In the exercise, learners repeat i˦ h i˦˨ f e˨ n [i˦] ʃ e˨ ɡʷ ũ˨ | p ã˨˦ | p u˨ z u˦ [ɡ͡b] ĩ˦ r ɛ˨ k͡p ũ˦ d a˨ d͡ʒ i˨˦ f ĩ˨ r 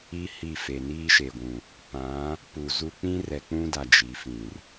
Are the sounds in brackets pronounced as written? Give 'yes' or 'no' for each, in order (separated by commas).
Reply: no, no